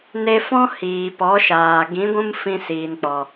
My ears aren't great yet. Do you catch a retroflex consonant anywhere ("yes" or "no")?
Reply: no